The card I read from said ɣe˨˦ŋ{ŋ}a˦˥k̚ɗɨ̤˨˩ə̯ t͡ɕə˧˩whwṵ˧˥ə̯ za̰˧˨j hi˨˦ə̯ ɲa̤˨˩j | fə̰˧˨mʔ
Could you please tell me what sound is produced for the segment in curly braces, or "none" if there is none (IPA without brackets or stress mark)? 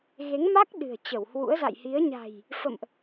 m